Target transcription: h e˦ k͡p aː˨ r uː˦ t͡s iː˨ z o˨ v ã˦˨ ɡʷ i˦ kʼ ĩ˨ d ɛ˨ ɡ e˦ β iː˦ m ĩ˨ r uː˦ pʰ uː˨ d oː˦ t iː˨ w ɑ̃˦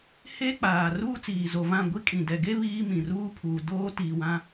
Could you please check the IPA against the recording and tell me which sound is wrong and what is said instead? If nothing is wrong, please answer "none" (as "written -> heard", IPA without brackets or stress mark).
ɑ̃˦ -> ã˦